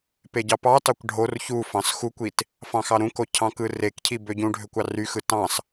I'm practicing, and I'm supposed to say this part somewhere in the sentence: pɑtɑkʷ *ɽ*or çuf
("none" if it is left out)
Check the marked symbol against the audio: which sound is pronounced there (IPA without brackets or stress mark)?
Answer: ɖʱ